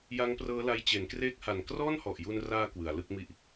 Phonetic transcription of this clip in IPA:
j a˦˥ ŋ p r ɤː˦˥ l a˧ j t͡ɕ e˩˦ n k r eː˦˥ k̚ h a˨˩ n k r ɔː˥˩ n h ɔ˨˩ ʔ j u˧ n r aː˧ k w ɯ˩˦ a̯ l ɯ˥˩ k̚ m i˥˩ ʔ

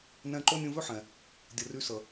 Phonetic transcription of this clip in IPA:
n ɛ̃˧ ǃ o˦ nʲ ũ˧ v ø˦ ħ ɛ̃˨ | dʲ ə˨ r y˧ s ə˨

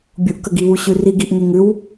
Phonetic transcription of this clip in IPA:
bʲ u ʔ k ə ɡ i β u ɕ ʉ r i ɡ i ʔ ŋ e ŋ ʉ w

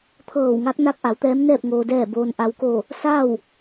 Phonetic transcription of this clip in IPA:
t̪ʰ ɤː˧˩ w ŋ a˧˥ k̚ n a˧˥ k̚ ʔ a˩˧ w t̪ ɛː˧˥ m n ɛː˥˨ p̚ ŋ oː˩ d ɛː˧˩ b oː˩ n ʔ a˩ w k o˧˩ | s a˥˨ w

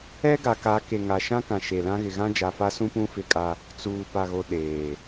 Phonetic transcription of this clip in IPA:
ɛ˦ ɡ a˨ k a˨˦ k e˨ ŋ a˨ ʃ ã˦ k ã˨ ʃ e˨ l ã˦ ɣ ɪ˨ ɣ ã˦ d͡ʒ a˨ f a˦ s ũ˦ p ũ˦ f ɪ˦˨ kʼ a˦ | t͡s uː˨ p a˨ ɣ o˨ ɗ eː˨

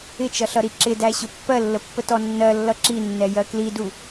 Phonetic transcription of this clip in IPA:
ɪ t͡ʃ ʌ ɬ ʌ ɾ i ǁ ɪ d æ ɕ ʊ pː ɜ lː ə pː ə t ɔ nː ɜ lː ʌ ǁ i nː ɛ j ɜ k l i d u

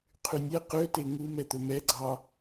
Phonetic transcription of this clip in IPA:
qʰ y nʲ ɛ q ø t e ŋ u m ɛ t̪ ɵ m ɛ ɡ͡ǀ ɑ

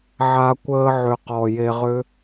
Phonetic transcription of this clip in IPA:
ʕ a˧ kʷ əː˧ ʕ ʏ˨ q ɔ˨ j e˧ ʁ ʏ˦

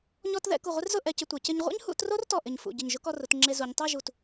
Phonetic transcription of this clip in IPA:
ɲ ɔ˧ t ð ɛ̰˥˧ k u˧˩ ʁʷ ɪ˥ r z ʊ˥˧ ʔ ɛ˧ c ɪ˧ tʷ ɛ˩˧ c ɪ˧ ɲ ʁʷ ɛ̰˥ ɲ h ṵ˥˧ t r o˥ r t ɔ˧˩ ʔ ɪ˧˩ ɲ f ṵ˧˩ ɟ ɪ˧˩ ɲ ʒ ʊ˥ k ɔ˧ r ʊ˩˧ t ŋ͡ǁ e˧ z u˩˧ ɲ tˤ a˥˧ ʒ u˧˩ t

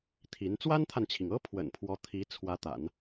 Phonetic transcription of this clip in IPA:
t̪ʰ i˧˥ n t͡s w a˥ n t̪ʰ a˨ n t͡ɕʰ i˩ ŋ ɤ˥ pʰ w ə̰˨˩ n pʰ w ɔ˧˥ t̪ʰ i˧˥ t͡sʰ w ä˧˥ t̪ a̰˨˩˦ n

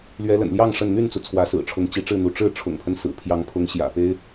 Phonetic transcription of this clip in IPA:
l ɥ ɛ˨˦ l ə̰˨˩ n l j ɑ˥˨ ŋ ʂ ə˥˨ n n̪ y˥˨ n t͡s u˩ t͡sʰ w ä˨˦ s ɹ̩˨˩ ʈ͡ʂʰ ʊ˨˦ ŋ t͡ɕ i˨˦ ʈ͡ʂ ɻ̩˥˨ n̪ u˨˦ ʈ͡ʂ ɻ̩˥˨ ʈ͡ʂʰ ʊ̰˨˩ ŋ pʰ ə˦ n s ɹ̩˨˩ pʰ j ɑ˨˦ ŋ pʰ ʊ˨˦ ŋ ɕ j ä̰˨˩ p e˦ ɪ̯

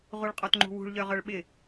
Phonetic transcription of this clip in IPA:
ʁ u ɭ qʼ ɔ t ŋ͡ǃ ṳ w ṳ ɭ ʎ œ ʁ œ ɭ ɓ ɪ

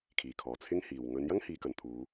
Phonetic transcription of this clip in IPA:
kʰ iː˨˩ kʰ ɔː˨˩ t͡sʰ ɪ˥ ŋ h iː˨ w ŋ ɵ˨˧ n j ɐ˥ ŋ h iː˨˧ k ɐ˨ n t̪ʰ uː˨˧

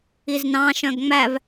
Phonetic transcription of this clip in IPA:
i z n ɑ̃ ʃ œ̃ ɡ ŋ͡m æ v

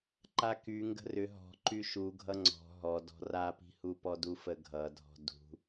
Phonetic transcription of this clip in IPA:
ǃ a k y ŋ ɡ ə̤ r ʏ ɦ ɔ̤ ǃ y ʃ u ɡʱ ʌ ŋ͡ǀ ɔ̤ ɦ ɔ d ɔ̤ r a p i̤ h u p ɔ d u f ə ɡʱ ʌ dʱ ɔ̤ d ṳ

